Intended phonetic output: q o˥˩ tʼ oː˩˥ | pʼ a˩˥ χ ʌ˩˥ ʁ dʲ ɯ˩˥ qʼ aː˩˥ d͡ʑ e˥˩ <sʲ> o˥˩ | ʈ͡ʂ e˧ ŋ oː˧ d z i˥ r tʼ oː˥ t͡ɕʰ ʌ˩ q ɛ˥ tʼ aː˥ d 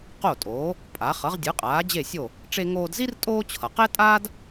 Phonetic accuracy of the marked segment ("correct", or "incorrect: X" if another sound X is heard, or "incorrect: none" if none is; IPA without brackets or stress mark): correct